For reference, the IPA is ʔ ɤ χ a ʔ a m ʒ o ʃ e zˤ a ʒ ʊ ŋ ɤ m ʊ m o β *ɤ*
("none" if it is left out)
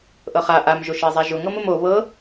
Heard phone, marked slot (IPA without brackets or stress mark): ɤ